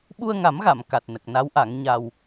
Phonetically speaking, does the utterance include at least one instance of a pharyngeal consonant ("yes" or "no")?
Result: no